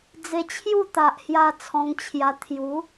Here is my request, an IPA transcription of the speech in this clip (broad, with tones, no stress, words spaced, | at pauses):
d͡ze˧t͡ɕʰju˥˧t̪a˨ʔhja˧ t͡sʰɔ̃˧ŋt͡ɕʰja˧ t̪ʰju˨˦